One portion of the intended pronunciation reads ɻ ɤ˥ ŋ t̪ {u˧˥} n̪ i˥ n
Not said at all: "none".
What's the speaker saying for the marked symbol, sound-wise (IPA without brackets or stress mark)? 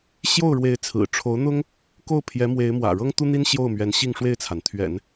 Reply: u˥